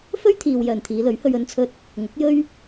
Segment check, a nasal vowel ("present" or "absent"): absent